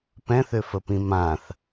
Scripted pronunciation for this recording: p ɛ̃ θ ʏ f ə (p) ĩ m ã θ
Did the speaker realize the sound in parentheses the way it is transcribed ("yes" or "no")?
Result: yes